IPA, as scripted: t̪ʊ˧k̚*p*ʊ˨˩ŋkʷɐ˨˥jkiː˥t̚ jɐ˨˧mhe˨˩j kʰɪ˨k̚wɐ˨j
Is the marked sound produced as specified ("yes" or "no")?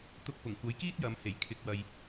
yes